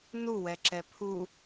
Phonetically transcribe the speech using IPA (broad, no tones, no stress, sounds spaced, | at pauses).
n u w ɛ ǁ ɛ pʰ u